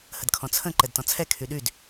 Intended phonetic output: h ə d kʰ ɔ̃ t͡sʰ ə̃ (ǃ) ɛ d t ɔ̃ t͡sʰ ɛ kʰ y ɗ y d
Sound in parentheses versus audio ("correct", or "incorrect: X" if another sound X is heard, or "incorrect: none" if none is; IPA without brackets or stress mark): correct